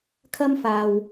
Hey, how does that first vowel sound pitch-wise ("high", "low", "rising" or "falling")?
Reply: high